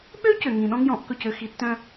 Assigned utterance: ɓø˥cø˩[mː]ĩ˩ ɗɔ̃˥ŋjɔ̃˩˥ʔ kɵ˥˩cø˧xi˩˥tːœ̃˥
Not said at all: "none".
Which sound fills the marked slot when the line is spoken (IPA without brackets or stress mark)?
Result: ŋ